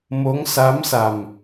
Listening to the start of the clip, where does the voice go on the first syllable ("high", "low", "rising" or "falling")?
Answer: rising